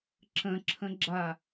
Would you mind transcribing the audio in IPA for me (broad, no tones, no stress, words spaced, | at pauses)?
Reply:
ǁə̃ǁʰə̃ɡ͡ǁa